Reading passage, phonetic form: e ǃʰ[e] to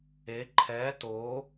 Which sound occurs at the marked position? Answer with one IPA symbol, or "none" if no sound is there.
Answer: ɛ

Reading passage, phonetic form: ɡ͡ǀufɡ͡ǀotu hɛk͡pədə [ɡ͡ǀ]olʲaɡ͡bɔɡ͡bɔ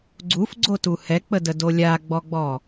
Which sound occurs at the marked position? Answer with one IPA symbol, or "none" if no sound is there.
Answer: d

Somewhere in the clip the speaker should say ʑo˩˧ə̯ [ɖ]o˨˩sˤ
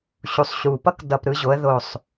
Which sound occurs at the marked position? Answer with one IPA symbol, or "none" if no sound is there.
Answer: ð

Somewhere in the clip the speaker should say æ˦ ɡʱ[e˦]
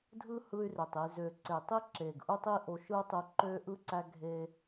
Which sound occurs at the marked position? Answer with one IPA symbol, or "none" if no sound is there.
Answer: e˦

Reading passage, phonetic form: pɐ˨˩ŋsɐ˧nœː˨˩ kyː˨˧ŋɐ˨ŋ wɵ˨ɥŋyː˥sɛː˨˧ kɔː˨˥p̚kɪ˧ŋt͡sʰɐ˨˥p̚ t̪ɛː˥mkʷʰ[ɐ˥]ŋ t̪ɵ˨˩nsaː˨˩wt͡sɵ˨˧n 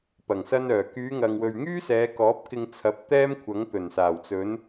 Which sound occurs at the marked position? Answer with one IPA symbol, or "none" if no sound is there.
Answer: ɐ˨˥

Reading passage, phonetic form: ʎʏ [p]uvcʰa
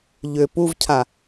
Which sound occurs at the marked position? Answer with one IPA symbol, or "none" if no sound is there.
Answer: p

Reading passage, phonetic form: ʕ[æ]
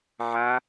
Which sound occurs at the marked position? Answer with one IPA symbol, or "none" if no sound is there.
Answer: a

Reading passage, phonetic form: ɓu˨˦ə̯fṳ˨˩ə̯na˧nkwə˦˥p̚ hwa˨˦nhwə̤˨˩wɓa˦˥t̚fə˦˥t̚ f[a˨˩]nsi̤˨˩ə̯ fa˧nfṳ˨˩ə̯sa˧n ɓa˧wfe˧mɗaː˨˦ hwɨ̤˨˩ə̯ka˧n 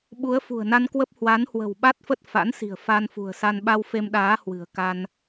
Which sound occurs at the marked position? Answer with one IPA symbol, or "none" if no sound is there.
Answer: a̰˧˥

